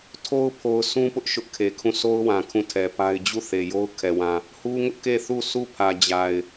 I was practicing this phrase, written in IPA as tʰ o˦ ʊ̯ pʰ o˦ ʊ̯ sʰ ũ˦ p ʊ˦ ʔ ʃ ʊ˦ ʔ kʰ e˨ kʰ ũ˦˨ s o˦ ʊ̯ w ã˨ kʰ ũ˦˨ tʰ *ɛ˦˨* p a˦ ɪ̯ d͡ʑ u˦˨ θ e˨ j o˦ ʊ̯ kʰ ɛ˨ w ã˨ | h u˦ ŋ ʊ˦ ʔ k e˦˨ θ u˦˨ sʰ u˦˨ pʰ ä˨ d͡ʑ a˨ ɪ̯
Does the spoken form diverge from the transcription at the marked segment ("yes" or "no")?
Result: yes